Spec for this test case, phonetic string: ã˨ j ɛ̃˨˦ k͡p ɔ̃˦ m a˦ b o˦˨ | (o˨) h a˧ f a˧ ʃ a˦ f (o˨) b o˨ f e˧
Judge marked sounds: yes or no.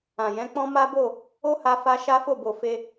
no, no

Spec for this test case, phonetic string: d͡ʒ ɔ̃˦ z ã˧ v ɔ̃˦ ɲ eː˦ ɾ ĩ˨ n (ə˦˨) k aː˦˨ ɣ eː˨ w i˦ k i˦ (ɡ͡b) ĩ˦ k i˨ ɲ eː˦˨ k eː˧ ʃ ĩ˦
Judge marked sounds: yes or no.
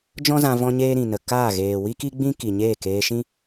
no, yes

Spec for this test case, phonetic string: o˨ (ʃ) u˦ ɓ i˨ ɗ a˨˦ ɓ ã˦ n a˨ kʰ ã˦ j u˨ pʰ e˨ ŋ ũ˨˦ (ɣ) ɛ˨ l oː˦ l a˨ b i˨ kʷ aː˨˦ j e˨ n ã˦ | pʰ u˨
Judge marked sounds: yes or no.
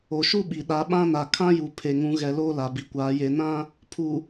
yes, yes

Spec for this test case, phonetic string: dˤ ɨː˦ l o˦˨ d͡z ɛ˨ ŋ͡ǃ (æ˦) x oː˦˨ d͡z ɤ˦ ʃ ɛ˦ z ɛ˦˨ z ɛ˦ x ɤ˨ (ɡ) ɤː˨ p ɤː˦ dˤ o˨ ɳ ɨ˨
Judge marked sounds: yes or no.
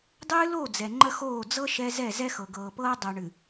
no, yes

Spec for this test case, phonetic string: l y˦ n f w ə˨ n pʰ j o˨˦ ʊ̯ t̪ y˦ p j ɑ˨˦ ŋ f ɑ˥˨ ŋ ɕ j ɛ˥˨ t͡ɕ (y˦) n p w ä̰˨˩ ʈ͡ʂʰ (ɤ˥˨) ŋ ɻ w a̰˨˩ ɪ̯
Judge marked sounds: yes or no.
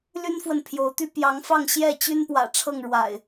yes, yes

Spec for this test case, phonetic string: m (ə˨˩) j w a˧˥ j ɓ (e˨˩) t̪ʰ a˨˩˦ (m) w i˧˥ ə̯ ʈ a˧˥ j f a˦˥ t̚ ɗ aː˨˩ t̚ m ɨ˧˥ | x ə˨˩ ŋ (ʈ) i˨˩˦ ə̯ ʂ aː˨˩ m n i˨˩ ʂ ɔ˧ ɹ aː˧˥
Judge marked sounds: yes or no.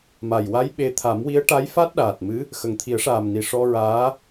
no, no, yes, no

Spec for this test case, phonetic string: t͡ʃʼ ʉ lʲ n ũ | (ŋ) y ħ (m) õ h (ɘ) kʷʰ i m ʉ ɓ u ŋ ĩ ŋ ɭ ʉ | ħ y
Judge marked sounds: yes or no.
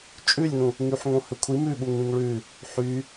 yes, no, yes

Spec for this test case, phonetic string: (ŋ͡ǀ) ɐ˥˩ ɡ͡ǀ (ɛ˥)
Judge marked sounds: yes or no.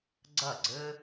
no, no

